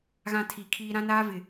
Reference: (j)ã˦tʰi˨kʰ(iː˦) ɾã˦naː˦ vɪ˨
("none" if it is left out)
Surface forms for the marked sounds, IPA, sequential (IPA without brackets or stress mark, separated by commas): ɣ, iː˦